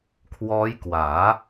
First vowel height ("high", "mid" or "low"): mid